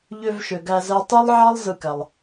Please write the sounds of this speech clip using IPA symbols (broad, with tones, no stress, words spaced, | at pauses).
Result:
ʎø˦vʃø˨ ɡæ˦zæ˥ tˤe˥lˠʕɑ˥lˠ zɯ˦kæ˨lˠ